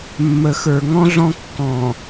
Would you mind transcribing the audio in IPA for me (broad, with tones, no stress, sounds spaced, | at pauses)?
mː ə˨ x ə˞˨ ŋ ɔ̃˦ ɮ ɔ̃˦ kː ɔ̃˨